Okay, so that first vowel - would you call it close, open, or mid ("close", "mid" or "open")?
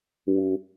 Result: close